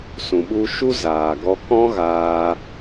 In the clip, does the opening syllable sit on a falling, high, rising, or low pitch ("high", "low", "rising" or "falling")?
low